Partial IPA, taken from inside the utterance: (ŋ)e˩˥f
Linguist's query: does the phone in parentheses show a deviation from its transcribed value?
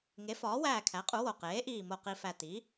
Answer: no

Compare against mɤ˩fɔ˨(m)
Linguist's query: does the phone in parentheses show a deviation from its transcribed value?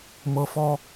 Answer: yes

